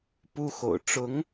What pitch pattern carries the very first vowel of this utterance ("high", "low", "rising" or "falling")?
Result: high